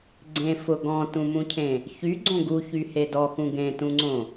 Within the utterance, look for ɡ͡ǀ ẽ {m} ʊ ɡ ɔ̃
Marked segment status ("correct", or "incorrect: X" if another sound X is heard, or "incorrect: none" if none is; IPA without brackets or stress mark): incorrect: f